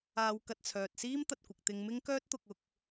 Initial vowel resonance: oral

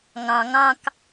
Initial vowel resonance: nasal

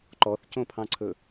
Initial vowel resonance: oral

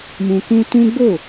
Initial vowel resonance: nasal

